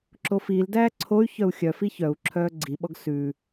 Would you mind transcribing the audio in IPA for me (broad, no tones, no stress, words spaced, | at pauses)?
ǁofiːldæː ǀʰoy̯ çœu̯xʲœfi çœu̯ǁʰœː ɡ͡ǀiɓɔɡ sʉ